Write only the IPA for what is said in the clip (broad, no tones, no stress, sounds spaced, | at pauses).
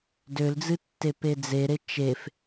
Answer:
d ø l d͡z ɨ tː e p e d͡z e ɾ e t͡ʃ e f